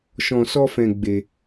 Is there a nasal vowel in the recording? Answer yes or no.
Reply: yes